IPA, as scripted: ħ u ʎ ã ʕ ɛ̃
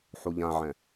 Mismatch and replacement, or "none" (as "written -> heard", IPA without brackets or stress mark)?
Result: none